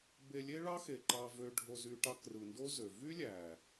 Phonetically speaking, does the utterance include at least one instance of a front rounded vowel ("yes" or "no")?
yes